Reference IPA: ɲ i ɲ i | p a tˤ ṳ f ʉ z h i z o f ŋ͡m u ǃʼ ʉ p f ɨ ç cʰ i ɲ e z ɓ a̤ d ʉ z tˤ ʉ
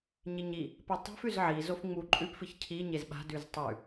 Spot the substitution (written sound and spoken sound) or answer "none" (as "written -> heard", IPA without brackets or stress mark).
h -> ʕ